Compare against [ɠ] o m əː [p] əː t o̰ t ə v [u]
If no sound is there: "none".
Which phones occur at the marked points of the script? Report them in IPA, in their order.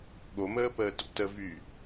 ɠ, p, y

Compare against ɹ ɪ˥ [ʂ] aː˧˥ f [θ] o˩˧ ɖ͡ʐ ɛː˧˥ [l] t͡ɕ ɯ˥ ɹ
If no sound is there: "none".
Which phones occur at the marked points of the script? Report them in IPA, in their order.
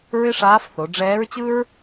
ʂ, θ, ɹ

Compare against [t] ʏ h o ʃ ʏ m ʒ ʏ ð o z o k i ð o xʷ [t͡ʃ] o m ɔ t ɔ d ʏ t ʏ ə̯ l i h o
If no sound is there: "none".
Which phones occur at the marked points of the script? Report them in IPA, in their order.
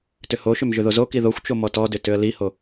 t, t͡ʃ

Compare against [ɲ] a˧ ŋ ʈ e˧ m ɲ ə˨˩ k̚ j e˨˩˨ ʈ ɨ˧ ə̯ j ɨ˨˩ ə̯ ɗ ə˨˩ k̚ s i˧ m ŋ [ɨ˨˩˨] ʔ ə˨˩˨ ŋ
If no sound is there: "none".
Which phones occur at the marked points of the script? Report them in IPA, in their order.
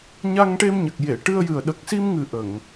ɲ, ɨ˨˩

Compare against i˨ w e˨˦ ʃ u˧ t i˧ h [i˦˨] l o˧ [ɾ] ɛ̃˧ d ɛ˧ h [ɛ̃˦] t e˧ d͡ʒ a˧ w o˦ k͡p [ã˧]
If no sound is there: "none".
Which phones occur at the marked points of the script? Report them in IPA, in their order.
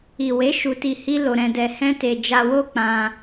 i˦, ɾ, ɛ̃˦, ã˧

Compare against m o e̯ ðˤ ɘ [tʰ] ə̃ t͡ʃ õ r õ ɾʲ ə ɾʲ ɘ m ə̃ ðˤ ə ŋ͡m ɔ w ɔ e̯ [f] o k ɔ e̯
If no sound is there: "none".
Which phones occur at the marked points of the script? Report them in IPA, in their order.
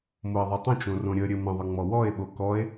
tˤ, ɓ

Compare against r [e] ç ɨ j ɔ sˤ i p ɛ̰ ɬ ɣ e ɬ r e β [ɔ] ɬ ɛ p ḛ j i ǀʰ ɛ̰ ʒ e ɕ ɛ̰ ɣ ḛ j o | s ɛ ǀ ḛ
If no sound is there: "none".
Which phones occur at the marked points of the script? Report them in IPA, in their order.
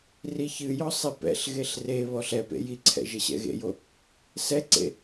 i, ɔ

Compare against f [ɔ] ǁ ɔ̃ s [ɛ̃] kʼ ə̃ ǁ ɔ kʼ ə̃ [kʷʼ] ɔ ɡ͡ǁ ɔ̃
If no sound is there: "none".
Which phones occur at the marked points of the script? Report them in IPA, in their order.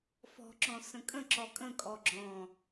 ɔ̤, ə̃, kʼ

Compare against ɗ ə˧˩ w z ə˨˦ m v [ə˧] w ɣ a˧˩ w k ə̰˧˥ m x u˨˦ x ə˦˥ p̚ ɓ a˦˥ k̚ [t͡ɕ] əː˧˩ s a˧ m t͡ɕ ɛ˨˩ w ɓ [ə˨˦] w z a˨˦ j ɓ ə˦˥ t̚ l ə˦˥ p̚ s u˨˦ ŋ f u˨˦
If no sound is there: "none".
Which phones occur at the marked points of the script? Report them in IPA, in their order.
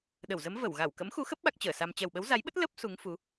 ə˧˩, t͡ɕ, ə˨˦

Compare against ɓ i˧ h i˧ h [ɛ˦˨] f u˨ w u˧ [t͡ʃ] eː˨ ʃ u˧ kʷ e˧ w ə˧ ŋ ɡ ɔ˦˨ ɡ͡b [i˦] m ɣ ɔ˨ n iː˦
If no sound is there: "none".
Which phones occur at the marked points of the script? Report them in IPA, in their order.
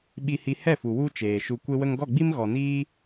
ɛ˦˨, t͡ʃ, i˦

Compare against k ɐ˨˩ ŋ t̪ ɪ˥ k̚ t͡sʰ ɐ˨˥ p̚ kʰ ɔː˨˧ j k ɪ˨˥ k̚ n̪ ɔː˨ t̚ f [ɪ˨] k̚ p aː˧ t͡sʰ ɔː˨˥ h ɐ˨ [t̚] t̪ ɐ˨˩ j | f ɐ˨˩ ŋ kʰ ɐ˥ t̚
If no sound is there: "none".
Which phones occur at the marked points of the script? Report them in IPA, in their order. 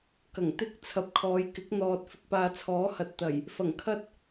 ɪ˧, t̚

